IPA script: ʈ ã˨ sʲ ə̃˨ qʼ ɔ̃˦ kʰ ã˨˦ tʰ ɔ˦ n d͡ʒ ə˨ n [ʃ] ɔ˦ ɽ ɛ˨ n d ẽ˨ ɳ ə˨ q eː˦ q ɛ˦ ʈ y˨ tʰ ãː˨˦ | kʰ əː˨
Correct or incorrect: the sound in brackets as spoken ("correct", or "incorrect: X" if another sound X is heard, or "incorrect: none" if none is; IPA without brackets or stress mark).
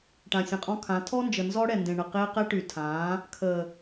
incorrect: z